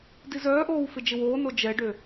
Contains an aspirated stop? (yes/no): no